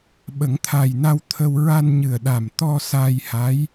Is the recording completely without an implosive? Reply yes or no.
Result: no